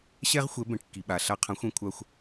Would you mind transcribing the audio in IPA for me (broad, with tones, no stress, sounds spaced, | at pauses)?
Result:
ɕ ɛ˥ ʁ xʷ ɛ˩˥ b ɛ̃˩ ʈ kː i˩ ɓ a˩ ɬ a˧ qʰ ã˩˥ xʷ ɛ̃˩˥ kʷʰ a˧ xʷ